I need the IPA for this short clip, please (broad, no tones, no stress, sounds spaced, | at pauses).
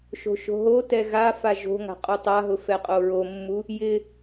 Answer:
ʃ o̤ ʃ o̤ ɦ o t ɛ ɣ a f a ʒ o̤ ŋ a̤ qʼ u tˤ a ɦ ʊ f ɛ qʼ o ɹ o mː u | j ɪ